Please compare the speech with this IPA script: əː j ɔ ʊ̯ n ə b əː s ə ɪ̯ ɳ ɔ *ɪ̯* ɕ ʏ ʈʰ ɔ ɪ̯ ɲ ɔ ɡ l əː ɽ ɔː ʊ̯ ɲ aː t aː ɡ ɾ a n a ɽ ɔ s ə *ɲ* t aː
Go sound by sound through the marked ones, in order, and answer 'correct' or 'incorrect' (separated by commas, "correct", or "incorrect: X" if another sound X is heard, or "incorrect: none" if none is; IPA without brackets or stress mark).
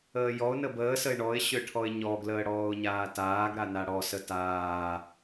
correct, incorrect: none